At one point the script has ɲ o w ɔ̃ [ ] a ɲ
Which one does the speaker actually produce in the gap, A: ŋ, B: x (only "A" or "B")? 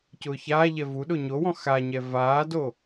B